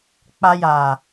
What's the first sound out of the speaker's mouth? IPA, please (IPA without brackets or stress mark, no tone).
k͡p